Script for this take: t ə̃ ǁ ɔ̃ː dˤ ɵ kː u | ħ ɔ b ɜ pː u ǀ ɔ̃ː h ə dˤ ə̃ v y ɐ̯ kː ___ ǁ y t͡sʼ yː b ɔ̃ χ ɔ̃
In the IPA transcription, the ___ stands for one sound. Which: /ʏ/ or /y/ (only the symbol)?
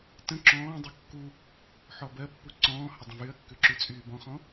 ʏ